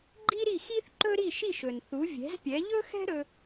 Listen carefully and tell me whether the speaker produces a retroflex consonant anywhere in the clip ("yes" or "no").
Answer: no